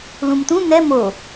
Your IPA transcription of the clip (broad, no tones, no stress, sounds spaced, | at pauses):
l ũ m t̪ ũ n̪ ɛ m o